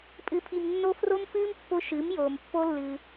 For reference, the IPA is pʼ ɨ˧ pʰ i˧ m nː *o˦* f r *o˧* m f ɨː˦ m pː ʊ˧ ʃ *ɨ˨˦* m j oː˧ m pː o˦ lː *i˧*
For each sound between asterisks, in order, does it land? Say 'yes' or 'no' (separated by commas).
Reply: yes, no, yes, no